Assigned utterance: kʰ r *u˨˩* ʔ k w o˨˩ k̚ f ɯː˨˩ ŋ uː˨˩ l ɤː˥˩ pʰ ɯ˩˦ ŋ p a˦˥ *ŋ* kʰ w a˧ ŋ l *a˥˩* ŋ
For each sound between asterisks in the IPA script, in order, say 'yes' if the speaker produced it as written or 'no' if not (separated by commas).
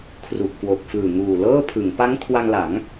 yes, yes, no